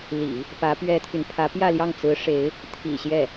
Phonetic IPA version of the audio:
l ḭ˨˩˦ | p ä˧˥ p ɥ ɛ˥ t̪ʰ y˨ n pʰ ä˧˥ p j ä˥˧ l j ɑ˥˩ ŋ t͡s ɹ̩˧˥ ʂ e˧˥ ɪ̯ | t̪ʰ ḭ˨˩ ɕ j ɛ˥˩

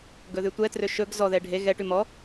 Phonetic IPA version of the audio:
ɡ ɵ ð ʉ tʷ ɛ t r ø ʃ ɵ ɡ z ɔ ð ɛ ɖʱ e ɣ ɛ ʈ ʉ m ɔ

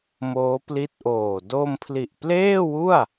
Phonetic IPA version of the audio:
m oː˦˥ p l i˦˥ t̚ ʔ oː˨˩ d o˧ m pʰ l i˨˩ ʔ p l eː˥˩ w u˥˩ a̯

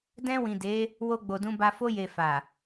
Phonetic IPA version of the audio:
d ɛ̃˧ w ĩ˨ d e˨˦ | w o˧ ɡ͡b o˨ d ũ˧ b a˧ f o˧ j e˨ f a˨

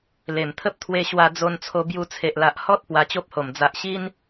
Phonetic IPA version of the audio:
l e˨˩ m t̪ʰ ə˦ p̚ t̪ʰ w e˧ ɕ w a˧ d͡z o˧ n t͡sʰ o˧ b j u˧ t͡sʰ e˨ ʔ l a˨ ʔ h ɔ˦ t̚ p w a˧ t͡ɕ o˦ p̚ h o˨˩ m d͡z a˨ ʔ ɕ i˦ n

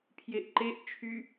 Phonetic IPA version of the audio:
pʰ j e ʔ ǃ e ʔ t͡ʃʰ y

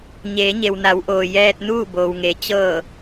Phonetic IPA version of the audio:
ɲ eː˩˧ ɲ e˩ w n a˩˧ w ʔ oː˩ j ɛː˧ t̚ n uː˥˨ b oː˩ w ŋ e˩ t͡ɕ ɤː˧˩

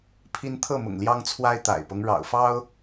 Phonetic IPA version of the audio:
pʰ i˦ n t̪ʰ ɤ˥˨ m ʊ̰˨˩ ŋ l j ɑ˦ ŋ t͡sʰ w a˦ ɪ̯ t̪ a̰˨˩ ɪ̯ p ɤ˦ ŋ ɻ ɑ̰˨˩ ʊ̯ f ɑ˦ ʊ̯

